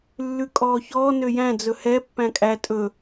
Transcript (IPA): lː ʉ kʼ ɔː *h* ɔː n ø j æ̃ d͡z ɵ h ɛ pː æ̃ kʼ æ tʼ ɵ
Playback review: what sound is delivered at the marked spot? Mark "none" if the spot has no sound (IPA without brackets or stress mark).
ç